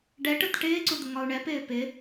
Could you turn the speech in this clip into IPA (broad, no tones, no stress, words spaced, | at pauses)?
ɖɛʈət ʈɪːǀud̪əŋɒu̯ ɳɛpɪː pɪ